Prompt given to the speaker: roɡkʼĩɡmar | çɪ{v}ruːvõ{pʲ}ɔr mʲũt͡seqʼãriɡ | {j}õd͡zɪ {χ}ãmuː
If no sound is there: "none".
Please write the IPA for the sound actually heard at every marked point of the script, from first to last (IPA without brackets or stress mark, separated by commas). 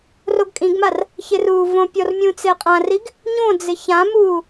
none, pʲ, ɲ, ç